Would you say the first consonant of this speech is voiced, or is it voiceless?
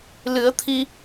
voiced